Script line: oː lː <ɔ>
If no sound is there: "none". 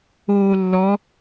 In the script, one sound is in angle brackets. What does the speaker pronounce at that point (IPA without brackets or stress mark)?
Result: ɔ